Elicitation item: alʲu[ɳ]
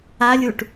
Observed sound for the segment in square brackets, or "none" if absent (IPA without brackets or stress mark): ʈ